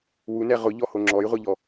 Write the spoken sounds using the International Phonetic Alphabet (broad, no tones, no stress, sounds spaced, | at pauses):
w u n ɛ ʁ ʊ ʎ ɔ h o ŋ͡ǁ ɔ j ʁʷ e ʎ ɔ